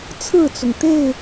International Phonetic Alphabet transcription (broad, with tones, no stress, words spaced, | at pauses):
t͡sʰɹ̩˥˨t͡sʊ˩ŋt̪e˥˨ɪ̯